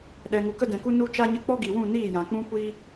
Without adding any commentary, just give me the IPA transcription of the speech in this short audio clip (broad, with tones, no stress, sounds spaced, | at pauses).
ɗ ɛ˨ ŋ u˨ k ə˧ d ɛ̃˨ k u˧ n u˧ t͡ʃ a˧ ɲ ə˧ k͡p ɔ˦ ɡ i˨ w ũ˦˨ n iː˦˨ j ã˨ k͡p ũ˦ kʷ iː˦